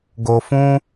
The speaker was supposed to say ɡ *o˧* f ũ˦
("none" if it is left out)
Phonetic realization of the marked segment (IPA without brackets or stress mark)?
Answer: o˧